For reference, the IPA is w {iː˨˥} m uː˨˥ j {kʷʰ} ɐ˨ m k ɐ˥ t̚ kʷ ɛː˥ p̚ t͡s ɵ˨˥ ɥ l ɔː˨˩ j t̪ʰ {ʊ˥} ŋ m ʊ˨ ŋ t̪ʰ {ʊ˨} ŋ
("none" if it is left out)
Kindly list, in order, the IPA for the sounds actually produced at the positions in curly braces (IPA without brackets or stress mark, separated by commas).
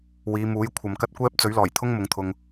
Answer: iː˨˧, kʷʰ, ʊ˥, ʊ˨